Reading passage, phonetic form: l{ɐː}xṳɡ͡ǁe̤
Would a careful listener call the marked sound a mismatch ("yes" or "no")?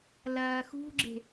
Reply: no